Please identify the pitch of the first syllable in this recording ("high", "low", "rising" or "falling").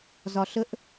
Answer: low